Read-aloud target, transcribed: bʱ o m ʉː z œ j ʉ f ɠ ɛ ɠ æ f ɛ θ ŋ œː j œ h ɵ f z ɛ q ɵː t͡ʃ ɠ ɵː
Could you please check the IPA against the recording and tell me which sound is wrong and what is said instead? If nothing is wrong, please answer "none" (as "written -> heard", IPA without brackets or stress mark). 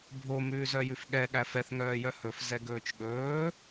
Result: q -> ɡ